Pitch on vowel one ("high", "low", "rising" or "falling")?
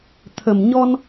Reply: low